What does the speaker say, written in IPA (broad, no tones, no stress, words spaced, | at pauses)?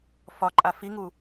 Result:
fɒǃʼa fiŋu